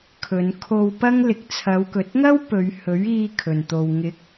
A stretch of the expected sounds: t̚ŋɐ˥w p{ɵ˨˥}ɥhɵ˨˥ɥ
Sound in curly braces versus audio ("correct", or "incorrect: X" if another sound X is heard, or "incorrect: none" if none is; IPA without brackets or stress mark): incorrect: ɵ˨˧